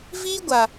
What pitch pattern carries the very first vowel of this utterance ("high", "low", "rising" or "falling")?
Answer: high